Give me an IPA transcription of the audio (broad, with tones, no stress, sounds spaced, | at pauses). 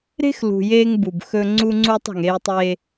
ɾ e̤˦ x l ṳ˨ j eː˦ ŋ b u˨ b x ɵ˦ ŋ͡ǀ u˦ ŋ͡ǀ u˦ tˤ ə̤˨ ŋ e˦ j tˤ eː˦